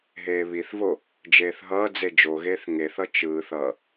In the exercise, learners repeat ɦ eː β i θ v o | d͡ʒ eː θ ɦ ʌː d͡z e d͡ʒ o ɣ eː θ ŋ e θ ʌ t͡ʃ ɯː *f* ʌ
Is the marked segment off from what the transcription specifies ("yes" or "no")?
yes